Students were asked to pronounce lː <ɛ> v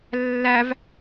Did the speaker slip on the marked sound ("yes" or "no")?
yes